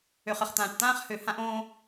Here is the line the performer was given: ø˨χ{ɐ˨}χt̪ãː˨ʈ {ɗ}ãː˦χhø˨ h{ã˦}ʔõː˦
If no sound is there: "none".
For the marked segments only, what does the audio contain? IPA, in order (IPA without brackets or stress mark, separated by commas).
ə˨, t̪, ã˦